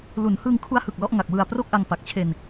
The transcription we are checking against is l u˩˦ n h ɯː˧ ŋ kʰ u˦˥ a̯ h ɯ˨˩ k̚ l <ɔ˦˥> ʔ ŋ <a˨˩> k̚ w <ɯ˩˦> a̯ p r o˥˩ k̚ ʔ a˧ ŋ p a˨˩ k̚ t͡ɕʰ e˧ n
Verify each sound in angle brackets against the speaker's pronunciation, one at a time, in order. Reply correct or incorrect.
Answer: correct, correct, incorrect: ɯ˨˩

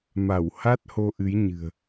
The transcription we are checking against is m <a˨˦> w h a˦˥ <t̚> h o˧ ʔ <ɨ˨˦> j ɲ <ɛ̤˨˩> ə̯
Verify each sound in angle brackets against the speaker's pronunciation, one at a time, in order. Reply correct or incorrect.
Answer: incorrect: a˧˩, correct, correct, incorrect: ɨ̤˨˩

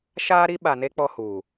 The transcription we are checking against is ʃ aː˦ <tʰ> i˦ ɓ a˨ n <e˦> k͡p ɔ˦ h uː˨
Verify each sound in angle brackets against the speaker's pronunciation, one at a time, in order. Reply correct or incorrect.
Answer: incorrect: ɾ, correct

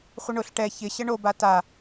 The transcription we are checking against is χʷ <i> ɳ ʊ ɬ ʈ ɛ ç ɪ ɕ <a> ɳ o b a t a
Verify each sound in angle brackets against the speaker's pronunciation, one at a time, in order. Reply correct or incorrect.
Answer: incorrect: ɪ, incorrect: ə

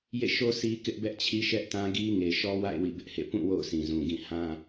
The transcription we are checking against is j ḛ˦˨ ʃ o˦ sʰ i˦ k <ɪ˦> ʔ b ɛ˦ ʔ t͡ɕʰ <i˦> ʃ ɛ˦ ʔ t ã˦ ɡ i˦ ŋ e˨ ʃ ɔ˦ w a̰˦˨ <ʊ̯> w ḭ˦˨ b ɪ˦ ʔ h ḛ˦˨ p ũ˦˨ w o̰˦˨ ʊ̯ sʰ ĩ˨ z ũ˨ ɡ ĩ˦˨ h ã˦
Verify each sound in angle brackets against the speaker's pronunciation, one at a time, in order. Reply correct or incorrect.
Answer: correct, correct, incorrect: ɪ̯

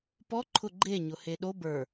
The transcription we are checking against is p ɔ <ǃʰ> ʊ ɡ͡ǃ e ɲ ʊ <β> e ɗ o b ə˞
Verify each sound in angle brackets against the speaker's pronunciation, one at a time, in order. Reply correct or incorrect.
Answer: correct, incorrect: h

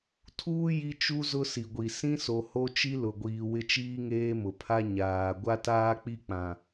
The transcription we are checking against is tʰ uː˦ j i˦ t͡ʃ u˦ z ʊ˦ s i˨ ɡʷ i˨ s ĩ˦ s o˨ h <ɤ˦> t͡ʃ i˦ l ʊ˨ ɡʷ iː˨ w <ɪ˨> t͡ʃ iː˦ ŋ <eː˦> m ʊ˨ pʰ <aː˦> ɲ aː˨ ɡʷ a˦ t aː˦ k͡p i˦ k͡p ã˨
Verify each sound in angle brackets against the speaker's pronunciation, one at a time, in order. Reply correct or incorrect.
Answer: incorrect: o˦, incorrect: ɪ˦, correct, incorrect: a˦

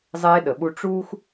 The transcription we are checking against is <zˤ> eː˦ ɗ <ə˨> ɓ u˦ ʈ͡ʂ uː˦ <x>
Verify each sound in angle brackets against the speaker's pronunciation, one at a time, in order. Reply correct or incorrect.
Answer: correct, correct, correct

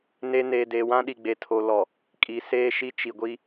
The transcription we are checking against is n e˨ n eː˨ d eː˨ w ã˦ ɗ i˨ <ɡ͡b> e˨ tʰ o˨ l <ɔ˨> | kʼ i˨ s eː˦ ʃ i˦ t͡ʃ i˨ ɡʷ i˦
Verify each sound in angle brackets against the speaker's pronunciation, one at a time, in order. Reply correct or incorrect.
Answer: correct, correct

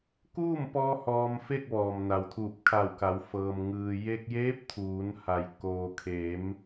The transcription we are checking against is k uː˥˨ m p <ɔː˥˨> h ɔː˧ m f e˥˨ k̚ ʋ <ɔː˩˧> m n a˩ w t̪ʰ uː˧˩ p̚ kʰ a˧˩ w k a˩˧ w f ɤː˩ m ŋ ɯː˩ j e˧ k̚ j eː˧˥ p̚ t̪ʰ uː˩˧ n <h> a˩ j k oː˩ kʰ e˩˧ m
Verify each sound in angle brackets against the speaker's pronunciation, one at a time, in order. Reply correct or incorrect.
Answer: incorrect: ɔː˧, incorrect: ɔː˩, correct

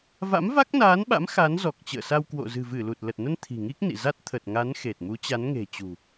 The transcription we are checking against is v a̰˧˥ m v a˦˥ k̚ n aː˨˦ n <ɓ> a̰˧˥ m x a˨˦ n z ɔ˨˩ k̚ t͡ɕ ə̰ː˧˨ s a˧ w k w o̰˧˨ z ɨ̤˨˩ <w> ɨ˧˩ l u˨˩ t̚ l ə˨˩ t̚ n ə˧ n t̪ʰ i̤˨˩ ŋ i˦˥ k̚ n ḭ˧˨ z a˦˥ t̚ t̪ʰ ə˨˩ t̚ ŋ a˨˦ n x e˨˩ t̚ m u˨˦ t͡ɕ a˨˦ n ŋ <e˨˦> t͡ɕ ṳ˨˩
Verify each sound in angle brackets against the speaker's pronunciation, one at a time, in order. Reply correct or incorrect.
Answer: correct, incorrect: v, incorrect: e̤˨˩

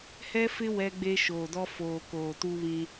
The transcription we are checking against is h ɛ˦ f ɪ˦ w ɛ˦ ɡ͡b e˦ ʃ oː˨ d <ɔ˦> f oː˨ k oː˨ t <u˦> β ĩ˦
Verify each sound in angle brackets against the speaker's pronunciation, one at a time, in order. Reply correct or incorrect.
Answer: correct, correct

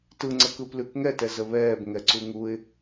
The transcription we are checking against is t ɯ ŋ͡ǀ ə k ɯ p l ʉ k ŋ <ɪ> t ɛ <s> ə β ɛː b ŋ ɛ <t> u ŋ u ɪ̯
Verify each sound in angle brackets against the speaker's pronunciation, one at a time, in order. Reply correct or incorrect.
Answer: incorrect: ɛ, incorrect: z, incorrect: ǀ

